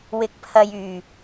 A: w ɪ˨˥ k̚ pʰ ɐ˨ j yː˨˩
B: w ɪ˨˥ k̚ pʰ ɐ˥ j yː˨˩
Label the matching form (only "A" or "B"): A